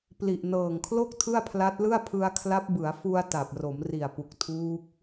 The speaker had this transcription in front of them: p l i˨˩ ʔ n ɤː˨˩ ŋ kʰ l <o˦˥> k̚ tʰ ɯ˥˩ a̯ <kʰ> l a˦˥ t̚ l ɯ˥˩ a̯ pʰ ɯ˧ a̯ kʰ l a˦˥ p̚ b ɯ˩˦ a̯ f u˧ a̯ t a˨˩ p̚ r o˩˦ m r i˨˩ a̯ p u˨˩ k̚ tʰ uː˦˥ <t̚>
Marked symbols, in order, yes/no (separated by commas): no, no, no